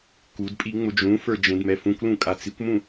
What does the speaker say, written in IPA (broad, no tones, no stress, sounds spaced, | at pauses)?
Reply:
k u d pʼ i ŋ͡m ʊ d͡ʒ ũ f ə˞ d͡ʒ ẽ d m ɛ f ũ kʷ l ũ kʼ a t͡s i kʷ m ũ